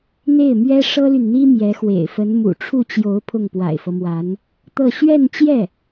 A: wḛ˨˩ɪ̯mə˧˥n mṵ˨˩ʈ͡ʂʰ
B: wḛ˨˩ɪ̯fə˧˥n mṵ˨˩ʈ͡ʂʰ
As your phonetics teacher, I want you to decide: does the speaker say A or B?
B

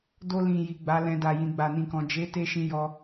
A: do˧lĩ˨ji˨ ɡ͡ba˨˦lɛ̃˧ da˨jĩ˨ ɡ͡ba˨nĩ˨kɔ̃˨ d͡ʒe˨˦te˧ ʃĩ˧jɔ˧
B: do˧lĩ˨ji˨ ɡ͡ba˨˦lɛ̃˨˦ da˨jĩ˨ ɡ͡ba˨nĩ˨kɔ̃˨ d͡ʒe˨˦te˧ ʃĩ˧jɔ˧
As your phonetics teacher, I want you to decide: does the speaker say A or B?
A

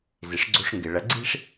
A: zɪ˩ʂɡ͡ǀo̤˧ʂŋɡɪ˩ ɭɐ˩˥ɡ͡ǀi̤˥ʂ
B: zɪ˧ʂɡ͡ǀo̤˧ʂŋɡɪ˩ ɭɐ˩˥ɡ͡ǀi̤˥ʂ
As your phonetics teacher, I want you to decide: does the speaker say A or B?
A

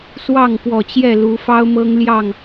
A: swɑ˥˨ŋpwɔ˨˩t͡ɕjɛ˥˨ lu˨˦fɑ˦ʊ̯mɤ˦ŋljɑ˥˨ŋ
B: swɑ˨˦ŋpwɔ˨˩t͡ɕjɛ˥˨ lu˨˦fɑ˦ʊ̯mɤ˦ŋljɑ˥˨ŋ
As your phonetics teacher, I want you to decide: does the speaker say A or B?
A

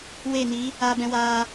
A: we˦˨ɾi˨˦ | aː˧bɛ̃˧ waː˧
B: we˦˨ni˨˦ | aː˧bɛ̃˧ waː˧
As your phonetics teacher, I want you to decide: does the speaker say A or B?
B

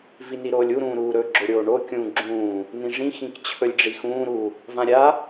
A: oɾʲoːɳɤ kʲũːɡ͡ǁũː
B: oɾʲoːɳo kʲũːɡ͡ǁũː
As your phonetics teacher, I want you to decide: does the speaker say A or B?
B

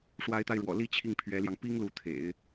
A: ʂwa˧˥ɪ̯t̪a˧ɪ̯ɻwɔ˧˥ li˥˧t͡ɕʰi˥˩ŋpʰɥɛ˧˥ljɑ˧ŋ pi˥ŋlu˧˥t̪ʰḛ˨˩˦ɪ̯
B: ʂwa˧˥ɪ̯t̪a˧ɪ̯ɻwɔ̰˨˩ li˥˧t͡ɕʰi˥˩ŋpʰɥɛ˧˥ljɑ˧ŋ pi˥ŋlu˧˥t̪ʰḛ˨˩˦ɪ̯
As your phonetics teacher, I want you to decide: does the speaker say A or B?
B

